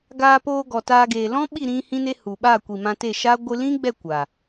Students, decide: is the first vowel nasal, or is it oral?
oral